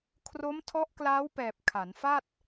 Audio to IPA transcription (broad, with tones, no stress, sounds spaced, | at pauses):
kʰ r o˦˥ m tʰ ɔ˦˥ ʔ k l aː˦˥ w p ɛː˨˩ p̚ kʰ a˩˦ n f a˥˩ t̚